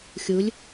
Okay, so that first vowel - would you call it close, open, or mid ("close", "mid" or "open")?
close